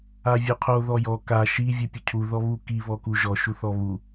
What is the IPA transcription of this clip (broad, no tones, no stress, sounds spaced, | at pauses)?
a vʲ o qʰ o ð ɔ j ɔ k a ʃ i vʲ u pʲ ʊ cʰ u ð ɔ β u k i β ɔ k u ʒ ɔ ʃ u θ ɔ β u